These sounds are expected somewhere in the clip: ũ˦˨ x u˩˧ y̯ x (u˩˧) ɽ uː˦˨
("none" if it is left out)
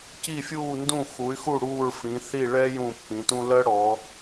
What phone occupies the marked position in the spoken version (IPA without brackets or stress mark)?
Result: u˦˨